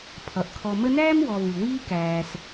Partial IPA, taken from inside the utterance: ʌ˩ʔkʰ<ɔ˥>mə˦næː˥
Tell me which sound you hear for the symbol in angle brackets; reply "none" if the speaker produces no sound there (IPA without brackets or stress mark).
ɔ˨